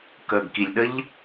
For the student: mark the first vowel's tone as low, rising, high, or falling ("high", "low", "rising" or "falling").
low